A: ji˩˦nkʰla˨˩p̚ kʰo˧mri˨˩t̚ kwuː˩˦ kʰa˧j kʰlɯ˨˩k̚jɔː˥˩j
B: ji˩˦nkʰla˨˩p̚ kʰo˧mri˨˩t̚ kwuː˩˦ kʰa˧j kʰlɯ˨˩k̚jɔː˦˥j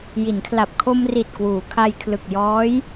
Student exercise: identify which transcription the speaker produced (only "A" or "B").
B